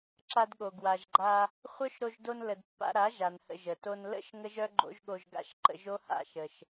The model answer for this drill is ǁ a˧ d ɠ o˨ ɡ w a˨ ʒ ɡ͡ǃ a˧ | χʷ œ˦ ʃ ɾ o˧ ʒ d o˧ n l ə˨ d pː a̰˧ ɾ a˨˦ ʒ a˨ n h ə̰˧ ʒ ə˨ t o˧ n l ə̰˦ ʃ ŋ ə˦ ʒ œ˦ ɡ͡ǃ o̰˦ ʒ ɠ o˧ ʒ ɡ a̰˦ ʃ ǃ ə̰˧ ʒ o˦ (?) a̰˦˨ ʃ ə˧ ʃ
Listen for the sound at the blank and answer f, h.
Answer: h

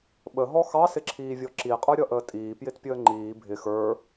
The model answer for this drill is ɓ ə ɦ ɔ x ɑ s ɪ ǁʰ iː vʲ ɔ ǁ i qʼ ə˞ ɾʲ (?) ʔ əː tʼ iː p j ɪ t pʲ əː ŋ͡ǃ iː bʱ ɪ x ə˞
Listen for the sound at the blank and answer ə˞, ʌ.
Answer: ʌ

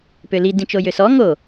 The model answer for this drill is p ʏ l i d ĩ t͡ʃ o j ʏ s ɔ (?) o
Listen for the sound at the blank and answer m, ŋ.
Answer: ŋ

